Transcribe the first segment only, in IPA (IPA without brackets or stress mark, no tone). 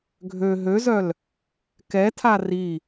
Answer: ɡʱ